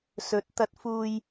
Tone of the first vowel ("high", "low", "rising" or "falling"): rising